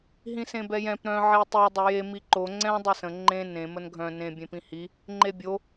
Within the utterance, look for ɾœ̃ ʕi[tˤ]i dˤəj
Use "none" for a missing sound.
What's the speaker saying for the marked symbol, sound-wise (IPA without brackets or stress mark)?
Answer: tˤ